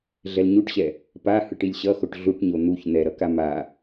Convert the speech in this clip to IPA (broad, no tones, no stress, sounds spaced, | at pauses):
ɮ ɛ l ɲ u ʈ ɕ ɛ | p a h ɯ ʈ i lʲ ɕ ʌ x o ʈ ɮ u ʈ ɲ o n̪ u ç n̪ ɛ ɾ ʌ k a m a